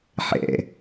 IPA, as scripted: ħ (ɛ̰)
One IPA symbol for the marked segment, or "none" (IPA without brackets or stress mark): ɛ̰